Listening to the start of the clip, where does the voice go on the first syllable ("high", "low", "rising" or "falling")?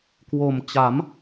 low